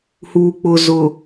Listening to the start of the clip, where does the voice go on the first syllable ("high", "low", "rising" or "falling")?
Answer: low